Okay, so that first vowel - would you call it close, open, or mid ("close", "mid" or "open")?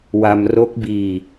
open